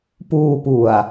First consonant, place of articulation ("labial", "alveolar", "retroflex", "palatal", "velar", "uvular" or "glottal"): labial